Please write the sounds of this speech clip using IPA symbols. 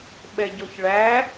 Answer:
ɓɛɟɔçɭæ

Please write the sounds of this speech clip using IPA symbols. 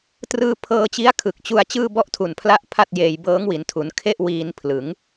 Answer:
trɯː˧pʰɤː˧t͡ɕi˦˥a̯ kʰɯ˨˩k̚t͡ɕu˧a̯ t͡ɕɯː˥˩bɔ˥˩ʔtʰu˨˩npʰla˥˩ʔ pʰa˥˩t̚jeː˧j bɤː˦˥ŋwi˩˦ntʰu˩˦n kʰe˥˩ʔ wiː˧n pʰlɯ˩˦ŋ

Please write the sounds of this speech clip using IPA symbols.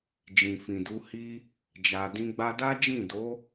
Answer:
d͡ʒĩ˨fĩ˨du˨˦hi˦ | d͡ʒa˨dĩ˧ ɡ͡ba˧da˦d͡ʒĩ˦˨do˨˦

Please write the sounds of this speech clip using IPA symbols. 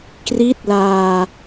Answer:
kri˦˥t̚laː˧

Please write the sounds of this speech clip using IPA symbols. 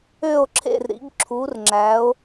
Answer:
ø˦˨o̯ǁʰḛ˦˨r ɾḭ˨˦ɡǁʰu˨˦rŋ͡ǁæ˨˦o̯

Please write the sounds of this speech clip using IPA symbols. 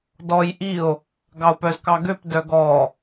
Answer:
dɔj ʔio̯ | ɡɑo̯pœzkɑɡøp dœɡɔ

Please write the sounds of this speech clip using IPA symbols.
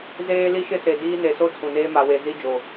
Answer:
zeː˦li˦ʃɪ˦ se˨ diː˦ ne˨so˦ tʰũ˨neː˦ ma˨we˨ zi˦ d͡ʒo˨

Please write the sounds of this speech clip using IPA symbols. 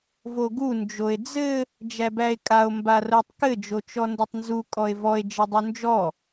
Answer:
voɡu nd͡ʒoe̯d͡zɘ | d͡ʒæbæe̯kʼao̯ mbarotˤkɘ d͡ʒot͡ʃɔndɘtˤnzu kʼɔe̯vɔe̯ d͡ʒɘdˤund͡ʒɔ

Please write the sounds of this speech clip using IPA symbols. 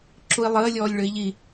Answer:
ǁui̯lˠəː lʲɔːlʲɭøi̯ʎi

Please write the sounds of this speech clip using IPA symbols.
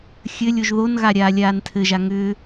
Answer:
xʲɘlʲ oʒðonɣa ɾʲaːlʲaːntʰɘʒa ŋʏː

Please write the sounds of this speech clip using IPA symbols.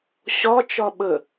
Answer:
ɕɒ t͡ʃɒɓə

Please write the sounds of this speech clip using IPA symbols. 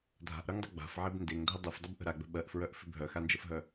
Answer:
dʱa̤ʔɾœŋdˤə ɡ͡ba̤fʕeb ndeŋdʱə dˤefdˤəbʔə̤ ɾaɡ͡bə̤ ɓɜʔfɹœʔfɪ bʱœxand͡ʒəfɦœ

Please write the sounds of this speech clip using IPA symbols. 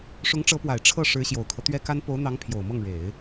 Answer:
ʂʊ˧˥ŋʈ͡ʂɤ˧˥pwa˨˩ɪ̯ ʈ͡ʂʰɤ˥˩ ʂɻ̩˧˥ɕjo˨˩ʊ̯kʰɤ˦ t̪ɥɛ˥ka˥n po˧˥ʊ̯n̪ɑ˧˥ŋ pʰjo˨˩ʊ̯mɤ˥˩ŋɻe˨˩˦ɪ̯

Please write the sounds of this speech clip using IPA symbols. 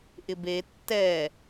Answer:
ʔɪbe tːɛ

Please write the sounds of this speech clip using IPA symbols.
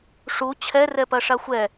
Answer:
ʂu t͡ɕʰɛ rɛpɐʂaxʷɛ

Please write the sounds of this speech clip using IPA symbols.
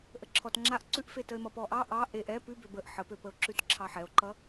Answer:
ʔəǁʰɔtŋ͡ǁaʔ ǀʉʔfetəe̯ mʌpɔʔɑ ʔɑ ʔeʔ ɛ pʉbø bəʔ ħəpøpəo̯ǁʉt ǁʰɑħɛo̯ǃʌ

